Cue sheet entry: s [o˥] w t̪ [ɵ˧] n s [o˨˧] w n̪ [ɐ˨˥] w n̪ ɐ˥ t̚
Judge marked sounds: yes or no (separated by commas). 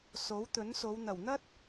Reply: no, no, yes, no